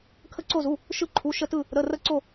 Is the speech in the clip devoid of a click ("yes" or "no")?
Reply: no